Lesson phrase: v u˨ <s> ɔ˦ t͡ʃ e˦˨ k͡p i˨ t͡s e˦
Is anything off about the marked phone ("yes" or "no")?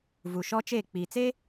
yes